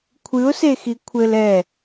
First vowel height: high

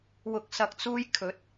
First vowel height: high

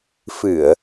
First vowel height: high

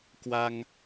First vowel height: low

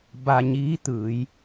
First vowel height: low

